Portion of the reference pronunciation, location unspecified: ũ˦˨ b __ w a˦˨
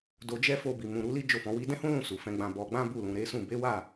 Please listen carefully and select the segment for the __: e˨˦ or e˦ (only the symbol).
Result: e˨˦